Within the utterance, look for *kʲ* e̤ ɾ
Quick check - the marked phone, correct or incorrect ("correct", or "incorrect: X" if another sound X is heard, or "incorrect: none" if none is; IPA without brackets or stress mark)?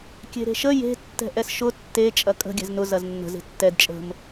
correct